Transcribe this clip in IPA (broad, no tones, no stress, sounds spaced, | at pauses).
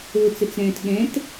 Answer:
o t͡s ɘ t͡s ɾ ɛ̃ː t ɠ ɛ̃ t